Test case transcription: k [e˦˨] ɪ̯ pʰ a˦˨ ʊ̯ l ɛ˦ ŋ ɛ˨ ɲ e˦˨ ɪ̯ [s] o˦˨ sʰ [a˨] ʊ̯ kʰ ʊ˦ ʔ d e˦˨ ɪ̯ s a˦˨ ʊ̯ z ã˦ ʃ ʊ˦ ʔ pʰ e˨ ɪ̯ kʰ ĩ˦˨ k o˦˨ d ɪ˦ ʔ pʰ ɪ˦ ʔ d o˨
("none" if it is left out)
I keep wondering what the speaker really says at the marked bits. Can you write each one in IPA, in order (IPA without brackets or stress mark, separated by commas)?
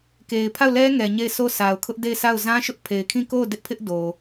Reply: e˨, s, a˨